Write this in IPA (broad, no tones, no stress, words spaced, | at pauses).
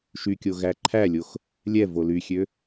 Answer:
ʃykʲo ɣæǃʰælʲox | lʲɛ volyxʲø